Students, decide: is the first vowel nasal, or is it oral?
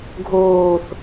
oral